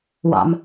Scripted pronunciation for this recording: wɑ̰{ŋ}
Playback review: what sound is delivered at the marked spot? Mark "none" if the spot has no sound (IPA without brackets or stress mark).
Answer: m